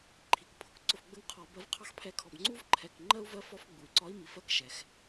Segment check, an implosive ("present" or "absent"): absent